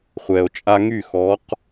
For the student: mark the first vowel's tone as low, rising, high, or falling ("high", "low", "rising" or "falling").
low